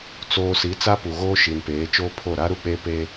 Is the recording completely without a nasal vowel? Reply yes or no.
yes